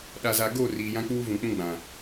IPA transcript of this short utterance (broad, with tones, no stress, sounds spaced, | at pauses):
ɗ a˨ z a˨ ɡ o˦˨ r iː˨ j ã˦ k͡p uː˦ v ũ˨ k͡p ũ˦ ɡ͡b ã˨